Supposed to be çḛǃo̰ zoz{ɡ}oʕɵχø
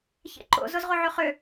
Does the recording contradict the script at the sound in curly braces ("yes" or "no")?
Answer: yes